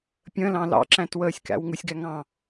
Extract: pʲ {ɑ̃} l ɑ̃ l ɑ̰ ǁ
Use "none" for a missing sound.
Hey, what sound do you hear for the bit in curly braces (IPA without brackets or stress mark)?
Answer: ə̃